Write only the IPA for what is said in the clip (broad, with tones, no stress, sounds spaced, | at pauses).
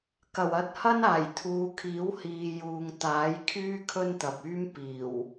k ɐ˨˩ w ɐ˧ t̚ h ɐ˥ n aː˨˩ j t̪ʰ uː˨˧ kʰ iː˨˥ w h iː˨ j uː˨ ŋ t̪ aː˨˥ j kʰ yː˥ kʰ ɵ˥ n t̪ ɐ˨ p̚ yː˥ m p iː˨˩ w